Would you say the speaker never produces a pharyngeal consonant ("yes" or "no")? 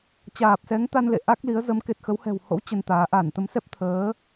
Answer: yes